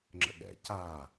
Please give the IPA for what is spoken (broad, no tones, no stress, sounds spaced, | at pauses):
ŋ͡ǁ ə̰ ɠ ɛ̰ c a